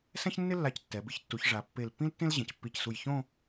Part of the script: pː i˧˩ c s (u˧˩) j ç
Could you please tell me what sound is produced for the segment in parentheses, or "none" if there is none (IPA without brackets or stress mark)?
u˧˩